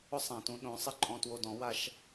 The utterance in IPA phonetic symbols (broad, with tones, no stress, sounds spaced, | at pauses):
ʊ˦ sˤ ã˨ t ũ˧ ɗ õ˨˦ sˤ ɪ˧ ǃʼ ɔ̃˧ t w o˧ d ɔ̃˨˦ w a˧ ʃ